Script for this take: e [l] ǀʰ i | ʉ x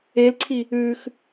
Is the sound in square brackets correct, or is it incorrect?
correct